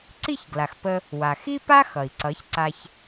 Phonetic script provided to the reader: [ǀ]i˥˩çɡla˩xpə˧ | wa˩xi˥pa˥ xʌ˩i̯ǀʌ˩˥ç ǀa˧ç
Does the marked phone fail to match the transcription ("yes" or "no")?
no